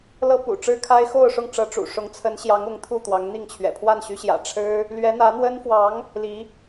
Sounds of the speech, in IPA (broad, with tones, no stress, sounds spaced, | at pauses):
l ɤ˥ p ṵ˨˩ ʈ͡ʂ ɻ̩˥ kʰ a˥ ɪ̯ x o˥˧ ʊ̯ ʂ ʊ˥˩ ŋ ʈ͡ʂ ɤ˧˥ ʈ͡ʂ ṵ˨˩ ʂ ʊ˧˥ ŋ t͡sʰ ə˧˥ n ɕ j ɑ˧˥ ŋ ʊ˧˥ ŋ t̪ʰ u˥˩ t̪ w ɑ˧˥ ŋ n̪ i˥˩ ŋ t͡ɕʰ ɥ ɛ̰˨˩ pʰ w a˥˩ n ɕ y˧˥ ɕ j ä̰˨˩ ʈ͡ʂʰ ɻ̩˥ | l ɥ ɛ˧˥ n̪ ä˧˥ n̪ w ə˥ n f w ɑ˧˥ ŋ | l i˧˥